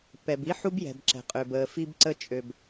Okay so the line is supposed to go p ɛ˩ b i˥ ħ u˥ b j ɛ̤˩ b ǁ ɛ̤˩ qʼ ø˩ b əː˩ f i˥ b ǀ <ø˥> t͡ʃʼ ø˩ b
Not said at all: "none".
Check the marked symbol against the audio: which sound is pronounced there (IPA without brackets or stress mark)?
ə˥